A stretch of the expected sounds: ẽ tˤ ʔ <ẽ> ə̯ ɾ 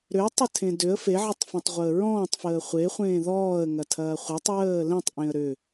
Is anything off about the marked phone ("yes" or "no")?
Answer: no